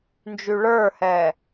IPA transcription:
n d͡ʒ y ɭ ə˞ h ɛː

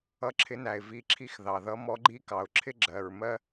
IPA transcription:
ʌ˧˥ ǁʰ ɪ˧˥ n æ˩ ɪ̯ v i˧˥ ǁʰ i˥ x ð ɑ˩ ð ʌ˧˥ m ɔ˧˥ ɡ͡ǃ i˥ k ɑ˩ ʊ̯ ǁʰ ɪ˥ ɡ͡ǁ ɜ˩ ɹ m ɜ˥

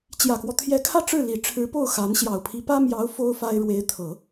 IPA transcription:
t͡ɕ j ä˨˩ k w ɔ˦ t̪ʰ j ɛ˧˥ kʰ ä˥˧ ʈ͡ʂ ɻ̩˥˩ l i˨˩ ʈ͡ʂʰ ɻ̩˧˥ p o˥˩ ʊ̯ x a˧˥ n ɕ j ɑ˨˩ ʊ̯ pʰ i˧˥ p ä˥ m j ɑ˧˥ ʊ̯ f o˥ ʊ̯ f a˥ ɪ̯ ɻ w e˧˥ ɪ̯ t̪ʰ ɤ˨˩˦

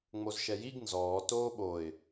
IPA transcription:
ŋ͡m o z ʃ ɛ j i ɡ n z ɔː t oː ɓ o ɪ̯

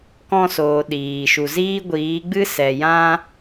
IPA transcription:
k ɔ̃˧ s oː˨ ɗ iː˨ ʃ u˨ z iː˦ ɡʷ iː˨˦ ɡ͡b ɨ˦ s ɛ˨ j ã˦

